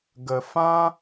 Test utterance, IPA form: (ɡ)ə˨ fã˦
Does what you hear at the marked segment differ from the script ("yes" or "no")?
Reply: no